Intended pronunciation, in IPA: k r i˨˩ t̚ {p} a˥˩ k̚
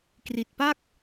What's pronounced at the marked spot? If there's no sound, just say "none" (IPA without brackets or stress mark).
p